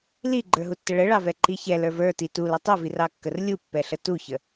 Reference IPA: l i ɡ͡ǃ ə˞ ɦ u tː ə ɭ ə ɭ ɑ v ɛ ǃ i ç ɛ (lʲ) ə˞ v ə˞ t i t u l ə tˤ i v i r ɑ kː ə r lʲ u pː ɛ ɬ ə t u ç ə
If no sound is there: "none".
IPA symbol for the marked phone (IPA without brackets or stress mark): l